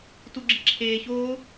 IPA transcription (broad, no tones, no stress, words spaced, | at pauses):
tuɡ͡ǁiǁʰeːçoː